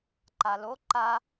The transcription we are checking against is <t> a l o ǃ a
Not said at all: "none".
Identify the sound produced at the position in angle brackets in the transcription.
ǃ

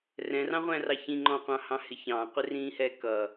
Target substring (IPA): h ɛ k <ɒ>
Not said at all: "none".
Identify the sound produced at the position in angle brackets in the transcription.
ʌ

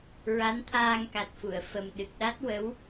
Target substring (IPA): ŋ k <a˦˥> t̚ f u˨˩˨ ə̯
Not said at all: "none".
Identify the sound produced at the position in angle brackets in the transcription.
a˨˩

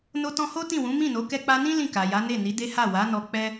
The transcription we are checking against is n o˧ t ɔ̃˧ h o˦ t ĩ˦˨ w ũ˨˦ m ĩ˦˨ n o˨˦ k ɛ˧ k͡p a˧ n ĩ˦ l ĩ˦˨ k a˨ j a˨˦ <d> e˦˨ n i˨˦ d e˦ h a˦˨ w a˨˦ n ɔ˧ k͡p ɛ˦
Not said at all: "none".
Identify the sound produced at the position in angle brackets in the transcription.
n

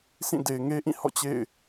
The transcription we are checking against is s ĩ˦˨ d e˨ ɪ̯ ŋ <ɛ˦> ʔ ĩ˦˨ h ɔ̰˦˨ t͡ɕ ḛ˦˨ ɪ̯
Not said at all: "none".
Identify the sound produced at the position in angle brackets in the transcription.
e˦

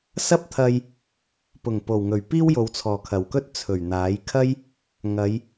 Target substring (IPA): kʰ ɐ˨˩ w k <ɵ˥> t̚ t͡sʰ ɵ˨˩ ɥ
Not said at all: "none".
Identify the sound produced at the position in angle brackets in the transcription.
ɵ˥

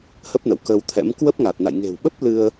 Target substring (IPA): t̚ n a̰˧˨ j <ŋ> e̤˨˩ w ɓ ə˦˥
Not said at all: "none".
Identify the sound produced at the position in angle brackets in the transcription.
ŋ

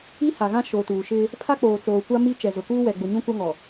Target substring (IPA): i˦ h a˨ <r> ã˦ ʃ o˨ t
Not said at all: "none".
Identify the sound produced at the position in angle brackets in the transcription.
ɣ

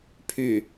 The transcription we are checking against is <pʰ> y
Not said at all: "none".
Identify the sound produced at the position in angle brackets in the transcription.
pʰ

